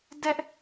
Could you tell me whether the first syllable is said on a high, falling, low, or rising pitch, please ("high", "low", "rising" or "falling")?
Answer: high